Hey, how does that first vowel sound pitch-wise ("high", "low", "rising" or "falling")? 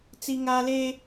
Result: high